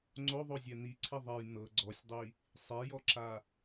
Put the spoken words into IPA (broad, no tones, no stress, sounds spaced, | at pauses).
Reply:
ŋ͡ǀ o ðˤ o zʲ ɛ n̪ i ǀʰ i ðˤ ɛ j n̪ ɤ ɡ͡ǀ ɔ sʲ dˤ i | sˤ e j ɔ ǁ a